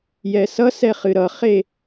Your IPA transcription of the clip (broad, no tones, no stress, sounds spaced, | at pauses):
j ɛ s ʌ s ɛ χ ɨ ɾ ʌ χ e